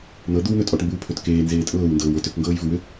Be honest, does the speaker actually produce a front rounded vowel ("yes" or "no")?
yes